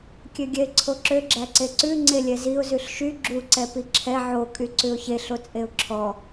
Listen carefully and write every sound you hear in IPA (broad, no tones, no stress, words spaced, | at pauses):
kʲøɡʲɛɪ̯ǀʰoǁø ɡ͡ǁæǀeǀʉ ŋ͡ǀelʲɛziʊ̯ zʉɬʃy ɡ͡ǁu ǀɛpiǁʰɛ ʕo kʼyǀʉʊ̯çeɬ ot͡sʼeʊ̯ǁʰɔ